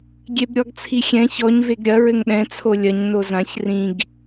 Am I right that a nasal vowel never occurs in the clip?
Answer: no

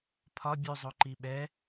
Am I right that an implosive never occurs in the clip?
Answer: no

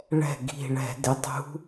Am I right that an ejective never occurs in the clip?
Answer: yes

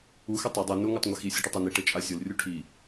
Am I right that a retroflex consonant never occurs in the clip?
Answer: no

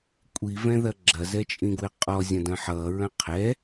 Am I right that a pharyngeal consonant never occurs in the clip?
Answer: no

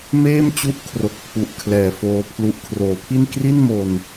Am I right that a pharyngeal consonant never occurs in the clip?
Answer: yes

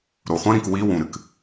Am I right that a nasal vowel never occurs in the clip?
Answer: no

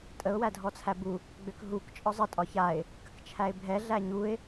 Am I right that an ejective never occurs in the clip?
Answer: no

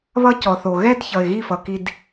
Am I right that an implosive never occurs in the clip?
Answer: yes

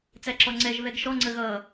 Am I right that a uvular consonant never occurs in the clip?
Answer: yes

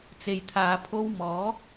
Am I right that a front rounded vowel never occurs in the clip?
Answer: yes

